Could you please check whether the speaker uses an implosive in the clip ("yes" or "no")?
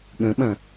yes